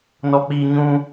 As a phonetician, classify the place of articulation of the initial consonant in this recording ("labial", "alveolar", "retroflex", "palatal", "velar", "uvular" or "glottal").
alveolar